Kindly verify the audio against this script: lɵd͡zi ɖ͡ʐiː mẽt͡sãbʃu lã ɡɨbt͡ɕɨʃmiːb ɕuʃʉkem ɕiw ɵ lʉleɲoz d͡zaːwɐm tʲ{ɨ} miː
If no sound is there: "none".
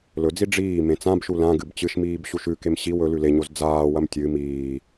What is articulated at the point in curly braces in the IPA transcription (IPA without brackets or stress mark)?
ɨ